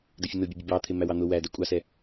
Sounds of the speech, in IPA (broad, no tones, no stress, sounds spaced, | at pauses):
d ə fʲ ə n ʊ bʲ ʌ bʲ ʌ b ɑ t̪ʰ ɪ m æ w ɑ n̪ ʊ w æ d ɛ kʷʼ ɑ s ɛ